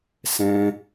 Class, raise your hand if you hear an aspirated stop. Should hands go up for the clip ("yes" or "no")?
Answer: no